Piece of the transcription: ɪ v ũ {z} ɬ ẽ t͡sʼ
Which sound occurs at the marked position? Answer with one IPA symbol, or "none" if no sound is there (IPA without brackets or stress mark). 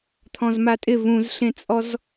z